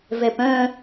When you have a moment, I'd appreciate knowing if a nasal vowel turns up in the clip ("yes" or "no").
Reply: yes